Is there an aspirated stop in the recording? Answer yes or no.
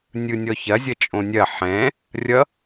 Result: no